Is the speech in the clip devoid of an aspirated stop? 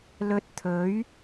no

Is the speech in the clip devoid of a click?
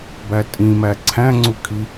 no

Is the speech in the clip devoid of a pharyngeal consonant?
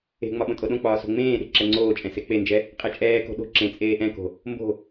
yes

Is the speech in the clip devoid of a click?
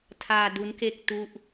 yes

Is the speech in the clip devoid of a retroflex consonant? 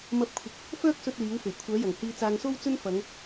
yes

